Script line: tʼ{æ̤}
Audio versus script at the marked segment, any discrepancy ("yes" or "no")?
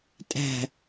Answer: no